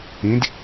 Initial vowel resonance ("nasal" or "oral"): nasal